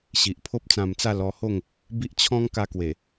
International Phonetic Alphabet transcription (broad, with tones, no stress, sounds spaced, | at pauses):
ɕ i˨ ʔ pʰ o˦ p̚ t͡s ã˧ m t͡s a˥˧ l ɔ˧ h o˥˧ ŋ | b i˦ ʔ t͡ɕʰ ɔ̃˦ ŋ k a˧ k w e˨˩